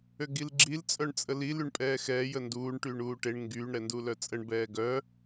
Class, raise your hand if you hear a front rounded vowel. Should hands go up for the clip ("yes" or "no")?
yes